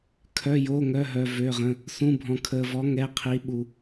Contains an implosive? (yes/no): yes